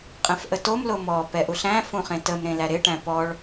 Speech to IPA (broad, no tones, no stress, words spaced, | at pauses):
qʼɛ̃fʔətom lomɔ pɛʔuɬæ̃ fũχẽtəm ɾẽlæɾɪ ʈæ̃pɔɭ